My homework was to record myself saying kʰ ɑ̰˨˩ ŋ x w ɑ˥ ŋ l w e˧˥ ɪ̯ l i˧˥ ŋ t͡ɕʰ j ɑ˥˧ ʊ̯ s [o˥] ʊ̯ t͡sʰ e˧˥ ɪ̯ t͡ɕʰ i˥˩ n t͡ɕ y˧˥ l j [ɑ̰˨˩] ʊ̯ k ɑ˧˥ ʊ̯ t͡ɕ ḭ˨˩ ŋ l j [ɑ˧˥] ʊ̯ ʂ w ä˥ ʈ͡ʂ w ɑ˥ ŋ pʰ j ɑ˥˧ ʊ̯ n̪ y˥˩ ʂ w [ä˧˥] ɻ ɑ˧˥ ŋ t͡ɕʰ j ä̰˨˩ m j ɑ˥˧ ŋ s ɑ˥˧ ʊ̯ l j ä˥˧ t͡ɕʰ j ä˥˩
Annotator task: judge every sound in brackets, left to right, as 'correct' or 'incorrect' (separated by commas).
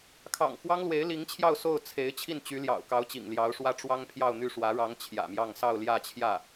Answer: incorrect, correct, correct, correct